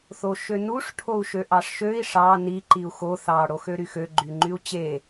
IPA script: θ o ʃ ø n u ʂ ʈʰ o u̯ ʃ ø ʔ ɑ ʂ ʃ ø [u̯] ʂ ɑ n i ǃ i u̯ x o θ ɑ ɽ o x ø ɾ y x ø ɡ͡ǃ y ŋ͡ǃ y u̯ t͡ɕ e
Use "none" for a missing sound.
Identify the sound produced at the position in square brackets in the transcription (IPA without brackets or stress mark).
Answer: i̯